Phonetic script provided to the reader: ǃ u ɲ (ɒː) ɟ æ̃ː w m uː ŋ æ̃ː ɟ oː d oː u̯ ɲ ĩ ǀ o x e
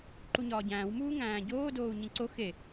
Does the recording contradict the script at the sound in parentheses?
no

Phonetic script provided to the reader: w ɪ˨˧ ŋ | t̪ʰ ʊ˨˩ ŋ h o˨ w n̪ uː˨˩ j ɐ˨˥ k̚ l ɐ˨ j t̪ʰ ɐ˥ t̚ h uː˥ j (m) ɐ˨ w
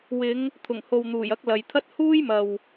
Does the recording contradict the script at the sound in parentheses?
no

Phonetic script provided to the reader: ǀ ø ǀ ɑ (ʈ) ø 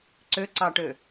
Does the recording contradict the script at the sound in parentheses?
no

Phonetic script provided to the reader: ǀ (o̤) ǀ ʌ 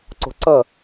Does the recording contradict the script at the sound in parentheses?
no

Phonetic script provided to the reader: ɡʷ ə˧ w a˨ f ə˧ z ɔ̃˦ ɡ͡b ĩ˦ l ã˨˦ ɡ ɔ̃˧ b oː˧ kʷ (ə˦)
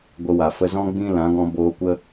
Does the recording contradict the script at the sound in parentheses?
no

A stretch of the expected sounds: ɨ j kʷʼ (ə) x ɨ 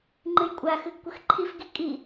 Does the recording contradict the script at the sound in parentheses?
yes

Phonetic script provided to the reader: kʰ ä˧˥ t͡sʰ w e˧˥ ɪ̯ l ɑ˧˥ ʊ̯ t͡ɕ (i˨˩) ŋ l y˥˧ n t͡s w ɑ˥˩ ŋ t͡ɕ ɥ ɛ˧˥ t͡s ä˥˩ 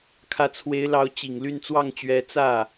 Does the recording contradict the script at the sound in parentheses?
no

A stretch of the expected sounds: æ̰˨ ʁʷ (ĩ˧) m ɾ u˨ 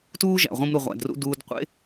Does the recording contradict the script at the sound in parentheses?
no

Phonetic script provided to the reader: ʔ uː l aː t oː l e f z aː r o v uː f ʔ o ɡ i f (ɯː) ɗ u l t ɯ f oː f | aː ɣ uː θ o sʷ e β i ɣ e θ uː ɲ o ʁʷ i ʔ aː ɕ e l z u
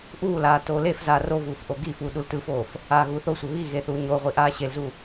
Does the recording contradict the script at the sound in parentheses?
yes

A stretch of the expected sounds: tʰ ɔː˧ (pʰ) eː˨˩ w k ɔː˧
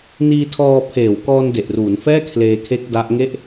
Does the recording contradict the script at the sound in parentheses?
no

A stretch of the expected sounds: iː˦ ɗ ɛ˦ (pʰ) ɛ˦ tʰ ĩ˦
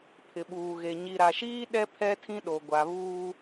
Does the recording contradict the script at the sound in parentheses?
no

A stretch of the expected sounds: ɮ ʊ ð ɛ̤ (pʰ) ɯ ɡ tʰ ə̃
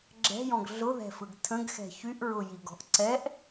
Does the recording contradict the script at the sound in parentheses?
yes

